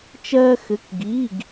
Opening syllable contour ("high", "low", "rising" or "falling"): high